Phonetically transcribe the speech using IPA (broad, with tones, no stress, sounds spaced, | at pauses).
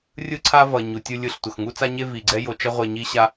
rʲ ɯ˥ ǀʰ a˥ v ʌ˩ ɲ u˩ tʲ ɯ˧ lʲ ɯ˧ ɬ tʷ ʌ˩ x ŋ u˥ t͡s a˥ ɲ e˥ v i˩ ɡ͡ǀ ɛ˥ j o˧ t͡ʃ ʌ˥ ʁʷ e˧ ɲ i˥ ɕ a˥